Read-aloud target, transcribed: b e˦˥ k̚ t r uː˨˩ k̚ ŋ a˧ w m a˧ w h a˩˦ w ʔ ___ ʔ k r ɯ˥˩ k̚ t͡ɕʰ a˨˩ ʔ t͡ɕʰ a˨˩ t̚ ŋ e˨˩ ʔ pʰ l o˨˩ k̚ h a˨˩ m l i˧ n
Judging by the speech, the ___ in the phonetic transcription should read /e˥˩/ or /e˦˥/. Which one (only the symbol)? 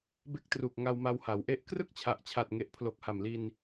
e˦˥